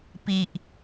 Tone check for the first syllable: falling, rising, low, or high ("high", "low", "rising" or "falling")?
low